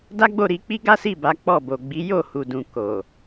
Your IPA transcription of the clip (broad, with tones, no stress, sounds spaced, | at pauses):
d a˦ ɡ͡b o˦˨ ɾ i˧ k͡p i˦ ɡ a˦ s i˦˨ b a˨˦ k͡p ɔ˦˨ b o˨ ɡ͡b i˨˦ j o˦˨ h u˨ d ũ˨ k o˨